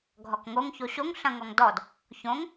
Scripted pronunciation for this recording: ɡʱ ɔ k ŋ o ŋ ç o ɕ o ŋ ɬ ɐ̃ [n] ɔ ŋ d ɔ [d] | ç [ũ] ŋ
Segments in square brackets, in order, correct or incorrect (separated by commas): incorrect, correct, incorrect